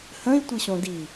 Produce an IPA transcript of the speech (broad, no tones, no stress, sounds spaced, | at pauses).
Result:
h ə̃ i̯ tʷ i ɕ õ d i